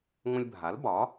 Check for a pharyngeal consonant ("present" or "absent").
absent